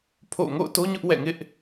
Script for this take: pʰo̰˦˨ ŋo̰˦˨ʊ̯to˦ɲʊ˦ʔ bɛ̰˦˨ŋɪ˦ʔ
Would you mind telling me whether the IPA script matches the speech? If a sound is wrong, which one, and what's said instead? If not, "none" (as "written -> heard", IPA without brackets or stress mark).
b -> w